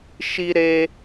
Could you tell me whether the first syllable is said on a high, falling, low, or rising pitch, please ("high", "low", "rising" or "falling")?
high